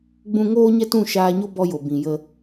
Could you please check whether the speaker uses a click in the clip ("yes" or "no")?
no